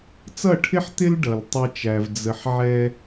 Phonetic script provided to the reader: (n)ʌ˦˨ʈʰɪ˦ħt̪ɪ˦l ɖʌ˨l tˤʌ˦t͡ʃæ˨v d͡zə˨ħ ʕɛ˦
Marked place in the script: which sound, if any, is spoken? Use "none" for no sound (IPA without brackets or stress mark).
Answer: t͡s